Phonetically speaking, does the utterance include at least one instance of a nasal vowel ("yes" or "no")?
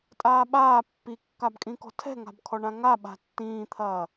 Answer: yes